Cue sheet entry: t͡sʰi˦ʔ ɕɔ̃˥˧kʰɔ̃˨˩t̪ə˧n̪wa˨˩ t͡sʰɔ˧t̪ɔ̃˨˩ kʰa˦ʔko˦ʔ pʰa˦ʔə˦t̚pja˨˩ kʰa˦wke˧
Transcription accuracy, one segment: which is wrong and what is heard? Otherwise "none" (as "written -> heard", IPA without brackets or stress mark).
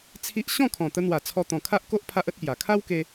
none